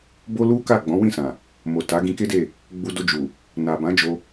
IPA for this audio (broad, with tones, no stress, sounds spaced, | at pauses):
b o˦ l u˦ k a˦˨ ɡ͡b ɔ̃˨˦ w ĩ˦˨ s ã˨ | m o˨ t a˨˦ ɡ ĩ˧ k e˦ d e˦˨ | ɡ͡b u˧ d o˧ d͡ʒ u˨ | n a˨ b ã˨˦ d͡ʒ o˧